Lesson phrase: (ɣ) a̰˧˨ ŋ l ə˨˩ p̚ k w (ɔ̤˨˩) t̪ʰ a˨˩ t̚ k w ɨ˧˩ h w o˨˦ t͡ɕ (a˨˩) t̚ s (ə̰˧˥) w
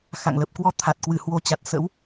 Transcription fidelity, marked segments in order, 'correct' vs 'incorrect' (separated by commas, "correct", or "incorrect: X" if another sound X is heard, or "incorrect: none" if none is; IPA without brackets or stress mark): incorrect: x, incorrect: ɔ˧, correct, correct